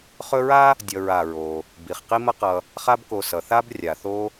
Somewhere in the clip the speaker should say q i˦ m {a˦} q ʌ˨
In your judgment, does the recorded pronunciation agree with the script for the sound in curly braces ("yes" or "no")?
no